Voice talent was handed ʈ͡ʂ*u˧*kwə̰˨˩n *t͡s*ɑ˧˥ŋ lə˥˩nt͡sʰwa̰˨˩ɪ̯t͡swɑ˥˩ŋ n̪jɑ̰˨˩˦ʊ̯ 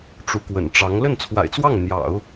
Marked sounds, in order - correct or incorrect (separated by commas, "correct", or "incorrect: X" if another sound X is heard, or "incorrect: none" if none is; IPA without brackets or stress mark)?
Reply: incorrect: u˧˥, incorrect: ʈ͡ʂ